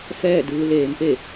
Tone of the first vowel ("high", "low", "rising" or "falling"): falling